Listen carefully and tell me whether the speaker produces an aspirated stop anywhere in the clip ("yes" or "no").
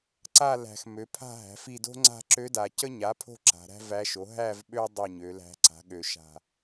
yes